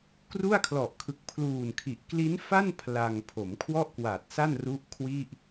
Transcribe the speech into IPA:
kru˥˩a̯kʰlɔ˨˩ʔkʰɯ˨˩k̚ pʰluː˨˩nkʰi˨˩ʔ kli˦˥nfa˥˩n pʰla˧ŋ pʰo˩˦mkʰwɔ˥˩ʔkwa˨˩t̚sa˥˩n ru˦˥ʔkʰwi˥˩ʔ

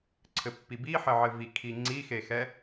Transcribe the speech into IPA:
ǀʰɘpːibiħɘ ʕɘvi kʰiŋ͡ǀixexɛ

